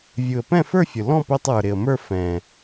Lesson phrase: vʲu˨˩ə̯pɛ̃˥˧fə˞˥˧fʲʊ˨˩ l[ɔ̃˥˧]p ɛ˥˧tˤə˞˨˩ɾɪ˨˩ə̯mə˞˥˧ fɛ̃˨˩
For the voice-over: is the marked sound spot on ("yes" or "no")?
yes